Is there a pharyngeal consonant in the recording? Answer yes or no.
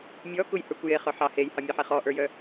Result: yes